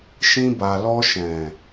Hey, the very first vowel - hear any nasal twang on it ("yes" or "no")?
yes